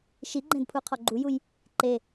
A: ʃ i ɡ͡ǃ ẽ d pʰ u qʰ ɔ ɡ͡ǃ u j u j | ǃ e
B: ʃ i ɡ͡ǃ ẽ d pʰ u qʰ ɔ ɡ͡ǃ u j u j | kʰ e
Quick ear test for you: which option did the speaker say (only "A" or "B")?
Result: A